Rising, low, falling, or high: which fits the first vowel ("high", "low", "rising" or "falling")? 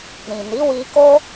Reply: low